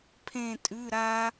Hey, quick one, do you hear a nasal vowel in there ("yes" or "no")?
yes